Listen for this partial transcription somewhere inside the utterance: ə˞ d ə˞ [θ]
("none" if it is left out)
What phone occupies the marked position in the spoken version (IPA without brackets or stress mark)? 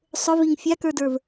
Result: v